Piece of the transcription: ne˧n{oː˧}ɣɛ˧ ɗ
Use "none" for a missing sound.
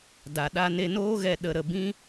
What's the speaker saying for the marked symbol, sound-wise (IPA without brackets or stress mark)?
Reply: oː˦